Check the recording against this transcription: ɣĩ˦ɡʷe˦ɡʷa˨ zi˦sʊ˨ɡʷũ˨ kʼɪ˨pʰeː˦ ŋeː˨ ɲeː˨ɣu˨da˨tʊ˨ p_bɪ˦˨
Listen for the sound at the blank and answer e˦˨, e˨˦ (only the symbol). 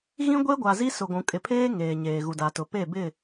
e˦˨